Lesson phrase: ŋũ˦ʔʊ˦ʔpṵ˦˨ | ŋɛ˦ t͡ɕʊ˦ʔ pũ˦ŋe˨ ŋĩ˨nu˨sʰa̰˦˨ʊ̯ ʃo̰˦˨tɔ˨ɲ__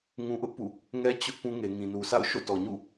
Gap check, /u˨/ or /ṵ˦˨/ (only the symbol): ṵ˦˨